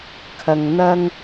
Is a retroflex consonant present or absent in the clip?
absent